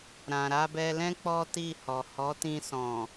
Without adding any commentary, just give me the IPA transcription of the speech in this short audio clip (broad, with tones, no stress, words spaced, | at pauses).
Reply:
ɾã˨ɾa˧bɛ˧lɛ̃˦ k͡pɔ˦ti˦˨hɔ˨ hɔ˨˦tĩ˧ sɔ̃˨